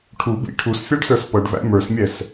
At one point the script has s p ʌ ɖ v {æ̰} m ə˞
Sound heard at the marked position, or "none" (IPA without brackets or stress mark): æ̰